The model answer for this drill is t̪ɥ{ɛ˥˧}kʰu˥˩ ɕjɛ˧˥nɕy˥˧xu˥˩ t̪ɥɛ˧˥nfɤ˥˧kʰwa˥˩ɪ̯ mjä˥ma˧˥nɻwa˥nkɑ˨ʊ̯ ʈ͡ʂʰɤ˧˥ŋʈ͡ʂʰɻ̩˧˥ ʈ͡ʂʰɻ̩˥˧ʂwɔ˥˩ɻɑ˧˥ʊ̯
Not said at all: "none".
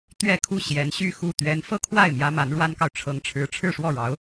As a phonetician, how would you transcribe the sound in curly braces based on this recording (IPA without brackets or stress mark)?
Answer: ɛ˥˧